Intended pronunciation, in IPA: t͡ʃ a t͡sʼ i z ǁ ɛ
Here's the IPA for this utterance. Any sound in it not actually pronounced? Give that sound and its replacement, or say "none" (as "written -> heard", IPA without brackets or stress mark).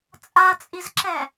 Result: t͡ʃ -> t͡sʼ